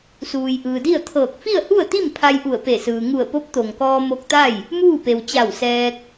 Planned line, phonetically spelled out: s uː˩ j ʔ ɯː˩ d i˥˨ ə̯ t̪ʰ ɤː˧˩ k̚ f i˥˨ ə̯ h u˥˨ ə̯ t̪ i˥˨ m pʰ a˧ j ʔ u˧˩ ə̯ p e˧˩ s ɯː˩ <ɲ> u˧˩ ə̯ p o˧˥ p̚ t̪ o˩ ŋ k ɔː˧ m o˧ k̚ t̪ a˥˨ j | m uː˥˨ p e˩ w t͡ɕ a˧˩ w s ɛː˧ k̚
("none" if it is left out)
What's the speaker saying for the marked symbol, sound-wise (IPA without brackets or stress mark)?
ŋ